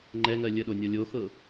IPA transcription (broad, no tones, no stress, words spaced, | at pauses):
ŋ͡ǃɛŋɜ lʲəɗonʲɔ lʲoxɤ